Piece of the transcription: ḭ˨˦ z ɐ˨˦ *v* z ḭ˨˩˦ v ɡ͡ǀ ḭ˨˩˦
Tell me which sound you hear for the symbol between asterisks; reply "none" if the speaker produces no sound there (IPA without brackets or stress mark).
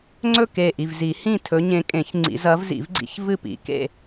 v